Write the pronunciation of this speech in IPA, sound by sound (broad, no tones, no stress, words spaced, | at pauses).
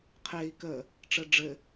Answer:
qʰei̯ kə | ʈ͡ʂɘɖ͡ʐɘ